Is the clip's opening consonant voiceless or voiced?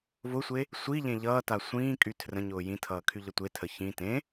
voiced